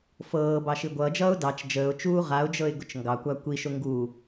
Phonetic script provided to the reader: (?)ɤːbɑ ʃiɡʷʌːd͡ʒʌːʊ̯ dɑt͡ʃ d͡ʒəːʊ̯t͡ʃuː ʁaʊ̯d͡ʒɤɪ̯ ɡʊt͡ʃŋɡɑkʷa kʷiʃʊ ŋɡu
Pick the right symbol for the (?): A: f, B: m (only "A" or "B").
A